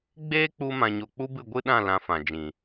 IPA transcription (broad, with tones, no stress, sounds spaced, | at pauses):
ɡ͡b eː˦ k͡p u˧ m ã˨ ɲ o˨ k͡p u˦ b ɨ˦˨ ɡʷ ɨ˦ ɗ ã˦˨ l ã˧ f ã˨ d͡ʒ ĩ˨